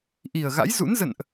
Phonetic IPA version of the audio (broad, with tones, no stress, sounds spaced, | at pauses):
ʔ i˨˩ ə̯ ɣ a̰˧˥ j z ṵ˧˥ n z ə̰˧˨ n ʔ